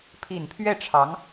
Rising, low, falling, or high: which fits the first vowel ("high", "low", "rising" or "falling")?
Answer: low